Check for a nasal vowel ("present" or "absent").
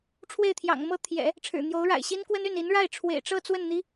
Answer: absent